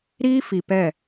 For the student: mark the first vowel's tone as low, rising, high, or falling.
high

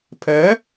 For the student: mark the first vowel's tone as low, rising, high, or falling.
rising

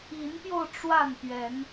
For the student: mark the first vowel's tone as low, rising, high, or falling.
rising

